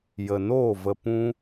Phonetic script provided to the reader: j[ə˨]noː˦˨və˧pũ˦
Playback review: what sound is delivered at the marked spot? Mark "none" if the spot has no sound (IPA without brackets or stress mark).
ə˨